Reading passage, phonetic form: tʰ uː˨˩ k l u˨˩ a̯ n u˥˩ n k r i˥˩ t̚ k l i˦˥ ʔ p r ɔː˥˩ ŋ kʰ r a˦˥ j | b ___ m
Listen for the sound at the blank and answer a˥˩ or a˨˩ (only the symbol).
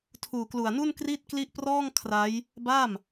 a˥˩